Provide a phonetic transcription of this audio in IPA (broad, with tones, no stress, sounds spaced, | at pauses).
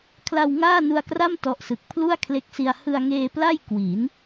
kʰ l a˧ w ŋ aː˥˩ n u˧ a̯ k r a˥˩ m t ɔ˦˥ ʔ s ɯ˨˩ k̚ pʰ l u˥˩ a̯ kʰ l e˦˥ k̚ s i˧ a̯ h ɯ˧ a̯ ŋ eː˧ p l a˥˩ j k w i˩˦ n